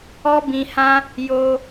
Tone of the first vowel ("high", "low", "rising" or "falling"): high